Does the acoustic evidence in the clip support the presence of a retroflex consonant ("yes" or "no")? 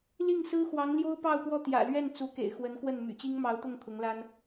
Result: no